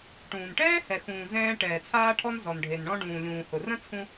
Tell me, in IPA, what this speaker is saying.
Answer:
ʈ ũː˩ n ʈ ɛː˥ h ɛ˩ x ũː˩ z ɛ̃ː˧ ʈ ɛː˩ t͡sʰ aː˧ ʈʰ ɔ˧ n z ɔ˩ n ɖʱ e˩ n ɳ ɔ̃˧ ɖ ũː˩ lʲ ũː˩ h ʊ˩ r ə̃˥ t͡sʰ ũ˧

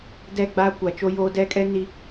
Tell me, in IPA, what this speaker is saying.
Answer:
d ɛ˦˨ ɡ͡b aː˦ kʷ a˨ t͡ʃ o˦ j oː˦ d ɛ˦ kʼ ɛ˦ n i˨

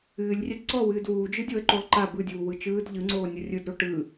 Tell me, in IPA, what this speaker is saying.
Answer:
ɨː lʲ rʲ ɛ d ǀ ɔ w ɨː d w uː d͡ʒ ɯ dʲ o ə̯ ǃ o lˠ ǃ a b ɯ dʲ uː w ɯ t͡ʃ ɯː d ʎ ɯ ŋ͡ǀ oː nʲ o rʲ ɯ d ɾ o ʈ ɯː

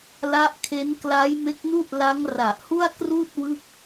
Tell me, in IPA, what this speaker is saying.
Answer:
l a˦˥ ʔ kʰ e˦˥ n k l a˦˥ j m e˦˥ k̚ n u˥˩ ʔ l a˦˥ ŋ r a˨˩ ʔ h u˥˩ a̯ k r uː˥˩ t̚ w ɯ˥˩ k̚

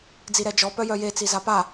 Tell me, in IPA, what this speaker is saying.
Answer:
d͡z i ɾ ɛ d͡ʒ ɔ p œ j œ j e t͡s i z a p a

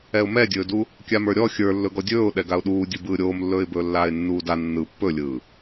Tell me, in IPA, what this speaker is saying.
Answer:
ɛ ʊ̯ m ɛ dʲ ɵː d u | kʲ a m ə˞ ɾʲ ɔ xʲ ə˞ lː ɵ ɡ ɔ dʲ ɵː ʊ̯ ɗ ɛ ɡ a ʊ̯ ɗ uː dʲ ɯ b ɯː ɾʲ oː m lː ɵː ɪ̯ b ɵː lː aː ɪ̯ nː uː d a nː ɯ pː ɵ lʲ ɯː

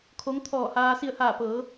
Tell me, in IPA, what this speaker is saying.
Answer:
kʰ o˧˥ ŋ t̪ʰ ɔː˧˩ h aː˧ s i˧˩ ə̯ h aː˧˩ p ɤː˩˧

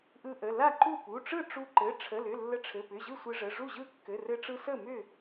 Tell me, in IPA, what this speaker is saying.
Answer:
ʔ ɯ˧ ʔ ə˩˧˩ l a˥˩ ǃ u˥˩ p u˩˧˩ ʈ͡ʂ ɯ˥˩ ʈ͡ʂ u˧ ǃ ɘ˩˧˩ ʈ͡ʂʰ ə˩˧˩ l ʏ˩˧˩ lː ə˧ ʈ͡ʂʰ ɘ˩˧˩ p ʏ˩˧˩ ʑ ɯ˥˩ sʷ ɘ˧ ʐ ə˩˧˩ ʐ u˥˩ ʑ ɯ˥˩ kː ɘ˩˧˩ r ɘ˧ ʈ͡ʂ ɯ˧ s ə˥˩ m ʏ˥˩

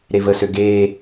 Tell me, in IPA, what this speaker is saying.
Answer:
ɾ e v ə s ø ɡ eː

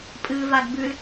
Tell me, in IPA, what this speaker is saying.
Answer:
pʼ ɨ v a ɡ b ʉ l

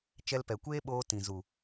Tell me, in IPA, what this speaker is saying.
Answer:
t͡ʃ ɛ˧ l p ɛ˨ kʷ eː˦ ɓ oː˧ t ĩ˨ z u˨

